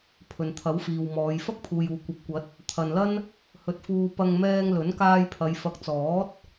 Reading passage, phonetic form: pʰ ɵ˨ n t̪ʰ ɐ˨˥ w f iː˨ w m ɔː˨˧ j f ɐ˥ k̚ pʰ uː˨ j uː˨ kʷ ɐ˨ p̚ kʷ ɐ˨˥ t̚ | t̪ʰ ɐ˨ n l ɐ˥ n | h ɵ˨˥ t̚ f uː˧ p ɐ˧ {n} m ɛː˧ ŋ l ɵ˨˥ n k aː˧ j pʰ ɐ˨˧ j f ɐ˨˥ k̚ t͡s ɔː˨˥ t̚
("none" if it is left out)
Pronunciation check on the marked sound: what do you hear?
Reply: ŋ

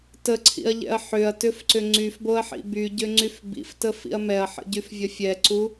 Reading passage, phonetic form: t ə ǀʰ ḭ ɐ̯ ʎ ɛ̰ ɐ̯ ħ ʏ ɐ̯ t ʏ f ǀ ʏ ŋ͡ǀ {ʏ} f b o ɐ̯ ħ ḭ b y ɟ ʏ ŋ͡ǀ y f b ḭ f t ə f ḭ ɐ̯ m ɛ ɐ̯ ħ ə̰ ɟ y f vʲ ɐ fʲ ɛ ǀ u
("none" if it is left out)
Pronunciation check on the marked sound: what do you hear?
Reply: y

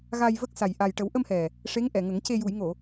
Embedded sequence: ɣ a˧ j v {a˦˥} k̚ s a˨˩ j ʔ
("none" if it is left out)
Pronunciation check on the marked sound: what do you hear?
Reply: ə˦˥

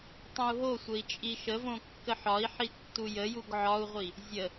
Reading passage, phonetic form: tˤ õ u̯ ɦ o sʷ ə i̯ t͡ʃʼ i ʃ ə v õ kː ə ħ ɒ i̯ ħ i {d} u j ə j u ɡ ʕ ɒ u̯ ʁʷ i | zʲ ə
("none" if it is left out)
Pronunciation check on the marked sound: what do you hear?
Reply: tː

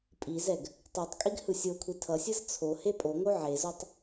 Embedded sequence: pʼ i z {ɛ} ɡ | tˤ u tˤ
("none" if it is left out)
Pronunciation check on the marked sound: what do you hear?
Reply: ɛ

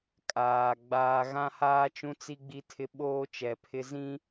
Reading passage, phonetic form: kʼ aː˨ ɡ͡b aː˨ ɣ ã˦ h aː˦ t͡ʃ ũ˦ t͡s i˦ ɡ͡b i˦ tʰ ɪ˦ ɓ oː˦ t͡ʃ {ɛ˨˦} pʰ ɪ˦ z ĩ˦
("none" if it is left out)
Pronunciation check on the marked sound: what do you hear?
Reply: ɛ˨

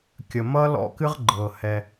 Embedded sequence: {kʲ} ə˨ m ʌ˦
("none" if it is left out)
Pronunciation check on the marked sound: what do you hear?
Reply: kʲ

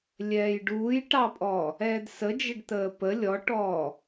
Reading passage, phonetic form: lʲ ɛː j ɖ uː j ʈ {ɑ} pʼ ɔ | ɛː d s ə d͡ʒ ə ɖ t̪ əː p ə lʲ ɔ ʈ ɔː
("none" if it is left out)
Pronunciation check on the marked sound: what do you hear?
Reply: ɑ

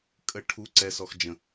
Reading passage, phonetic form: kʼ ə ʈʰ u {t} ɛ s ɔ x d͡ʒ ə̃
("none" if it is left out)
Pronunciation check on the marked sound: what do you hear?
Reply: ǀ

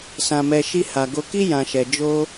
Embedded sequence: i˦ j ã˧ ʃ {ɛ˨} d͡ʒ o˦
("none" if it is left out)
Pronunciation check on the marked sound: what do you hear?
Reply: ɛ˧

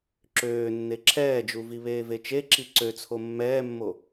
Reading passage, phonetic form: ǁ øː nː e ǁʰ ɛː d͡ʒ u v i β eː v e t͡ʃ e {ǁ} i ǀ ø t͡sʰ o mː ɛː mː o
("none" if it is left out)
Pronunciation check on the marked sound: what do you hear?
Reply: ǁ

